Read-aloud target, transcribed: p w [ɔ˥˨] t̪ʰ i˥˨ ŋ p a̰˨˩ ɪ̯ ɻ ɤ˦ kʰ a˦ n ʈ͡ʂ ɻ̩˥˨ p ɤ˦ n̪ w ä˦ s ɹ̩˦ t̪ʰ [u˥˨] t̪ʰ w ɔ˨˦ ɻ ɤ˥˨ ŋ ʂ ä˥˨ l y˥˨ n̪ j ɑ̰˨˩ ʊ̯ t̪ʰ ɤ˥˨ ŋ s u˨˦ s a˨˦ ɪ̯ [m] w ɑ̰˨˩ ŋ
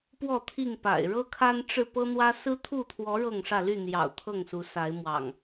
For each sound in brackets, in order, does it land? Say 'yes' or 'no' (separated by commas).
yes, yes, yes